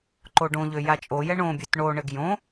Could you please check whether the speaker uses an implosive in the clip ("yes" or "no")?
no